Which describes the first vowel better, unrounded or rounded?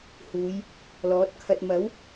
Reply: rounded